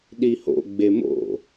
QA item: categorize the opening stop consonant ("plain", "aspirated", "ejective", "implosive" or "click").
implosive